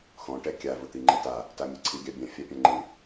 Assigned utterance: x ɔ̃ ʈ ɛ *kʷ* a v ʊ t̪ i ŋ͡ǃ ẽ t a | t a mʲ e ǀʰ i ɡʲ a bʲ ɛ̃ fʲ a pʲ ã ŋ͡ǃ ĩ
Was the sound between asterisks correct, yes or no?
no